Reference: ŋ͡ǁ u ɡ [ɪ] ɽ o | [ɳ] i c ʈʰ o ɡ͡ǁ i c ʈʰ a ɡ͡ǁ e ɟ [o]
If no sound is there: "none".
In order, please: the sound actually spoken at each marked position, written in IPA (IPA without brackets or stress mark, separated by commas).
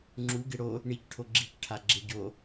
ɪ, ɳ, o